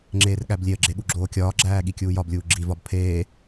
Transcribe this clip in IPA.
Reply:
ŋ͡ǁ eː r ɠ æ b lʲ e ə̯ ɡ͡ǁ e ɠ u ɡ͡ǁ oː kʲ ɒː ɡ͡ǁ æː ɠ i kʲ uː j ɒ b lʲ uː ɡ͡ǁ i v ɒ b pʰ eː

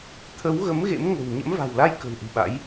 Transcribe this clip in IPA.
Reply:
t̪ʰ ə˨˦ w ɣ ə˨˦ m ɣ ḛ˧˥ m ŋ ə̤˨˩ w ɲ ə̰˧˥ m v a̤˨˩ w l a˧ j k ə̤˨˩ w ʔ ɨ̤˨˩ ɓ a̰˧˥ j

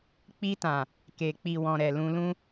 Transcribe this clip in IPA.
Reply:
k͡p i˧ t ã˨ | k e˨ k͡p i˨ w ɔ̃˨ ɾ ɛ˨ l ũ˧ l ũ˦

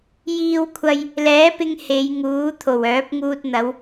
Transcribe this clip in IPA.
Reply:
j iː˧ w kʷʰ ɐ˧ j | l ɛː˨˥ p ɪ˧ ŋ h e˨˧ j ŋ uː˨˥ t̪ʰ o˨˩ w œː˨˥ p̚ ŋ uː˧ t̚ n̪ ɐ˨˧ w

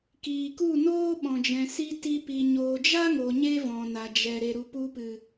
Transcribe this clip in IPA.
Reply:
k iː˨ k u˦˨ n oː˦ ɓ ɔ̃˨ d͡ʒ ɛ̃˨ s i˧ t i˧ p i˨ ɲ oː˨ d͡ʒ a˦ ŋ o˨ ɲ e˦ v ɔ̃˨ n a˨ d͡ʒ ɛ˨ ɾ e˨ ɾ u˨ p u˧ p ɨ˨

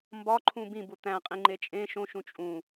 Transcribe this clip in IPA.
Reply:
m b ɒ ǃʰ ũ b ĩ b u t̪ æ̃ qʼ ĩ ŋ͡ǃ e t͡ʃʼ ẽ ʃ õ ʃ ũ t͡ʃʼ ũ

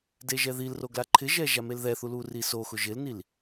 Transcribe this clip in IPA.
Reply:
d e ʒ ɛ ð i l r o ɡ l a ǃʰ ɪ ʒ ɛ ʒ a m e l ð ɛ θ u l u r i s o x ʊ ʒ ɪ l n i l

